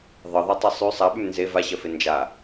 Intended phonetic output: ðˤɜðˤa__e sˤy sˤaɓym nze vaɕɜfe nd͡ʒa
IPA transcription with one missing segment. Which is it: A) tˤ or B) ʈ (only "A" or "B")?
A